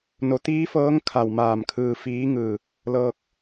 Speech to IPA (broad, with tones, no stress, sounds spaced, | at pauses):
n o˩˧ t̪ iː˧˥ f ɤː˧˥ ŋ kʰ a˧˩ w m aː˧˩ m kʰ ɯː˧ f iː˧˥ ŋ ɯː˧˩ | l ɤː˧ k̚